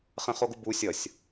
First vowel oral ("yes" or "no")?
no